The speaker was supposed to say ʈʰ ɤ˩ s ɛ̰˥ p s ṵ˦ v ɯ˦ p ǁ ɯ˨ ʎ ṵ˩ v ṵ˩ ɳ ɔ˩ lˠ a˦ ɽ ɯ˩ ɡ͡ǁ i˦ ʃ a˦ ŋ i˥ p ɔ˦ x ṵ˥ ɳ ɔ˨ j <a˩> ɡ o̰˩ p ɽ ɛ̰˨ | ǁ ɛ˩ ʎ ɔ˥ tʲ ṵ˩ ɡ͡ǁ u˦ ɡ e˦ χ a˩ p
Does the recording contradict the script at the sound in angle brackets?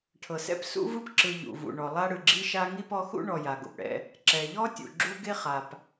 no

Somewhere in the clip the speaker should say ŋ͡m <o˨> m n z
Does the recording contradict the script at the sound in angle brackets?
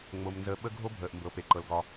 yes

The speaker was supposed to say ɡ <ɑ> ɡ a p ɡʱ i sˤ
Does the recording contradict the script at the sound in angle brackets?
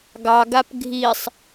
no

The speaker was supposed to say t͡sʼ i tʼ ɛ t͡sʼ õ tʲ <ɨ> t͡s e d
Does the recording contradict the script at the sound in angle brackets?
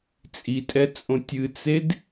no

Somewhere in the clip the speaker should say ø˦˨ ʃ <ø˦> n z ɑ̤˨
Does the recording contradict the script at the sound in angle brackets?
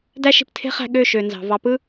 yes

